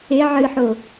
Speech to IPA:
e ʕ ɨ ħ o

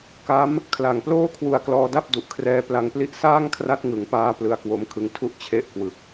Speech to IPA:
k a˦˥ m | kʰ l a˨˩ ŋ p l oː˥˩ kʰ w u˧ a̯ k l ɔː˧ d a˥˩ p̚ d u˨˩ ʔ kʰ r ɛː˦˥ p l a˧ ŋ p l i˥˩ ʔ s aː˥˩ ŋ kʰ r a˦˥ t̚ ŋ ɯ˩˦ ŋ p aː˧ p l ɯ˧ a̯ k w o˦˥ m kʰ ɯ˧ ŋ tʰ u˥˩ ʔ t͡ɕʰ e˥˩ ʔ k w ɯ˨˩ k̚

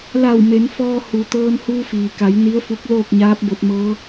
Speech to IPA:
l a˧˩ w m e˩˧ n f ɔː˧ h u˩ t̪ ɤː˧ n h uː˧ f iː˩ k a˩˧ j n i˧˥ ə̯ f u˧˥ k̚ l oː˥˨ k̚ ɲ aː˧˥ p̚ b o˧ t̚ m ɤː˧˥

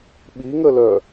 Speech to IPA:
ɓ i ŋ ə l œ

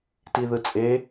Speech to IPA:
t i ð ɯ t͡sʼ e

